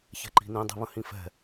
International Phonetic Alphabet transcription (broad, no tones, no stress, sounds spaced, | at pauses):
ç ɛ̤ ǃ i̤ n ĩ dˤ i̤ β ə̃ h ĩ f ɛ̤